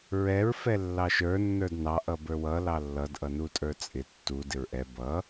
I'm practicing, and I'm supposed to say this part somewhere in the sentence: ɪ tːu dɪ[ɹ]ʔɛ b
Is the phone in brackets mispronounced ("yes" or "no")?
no